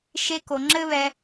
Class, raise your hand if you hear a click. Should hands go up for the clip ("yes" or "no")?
yes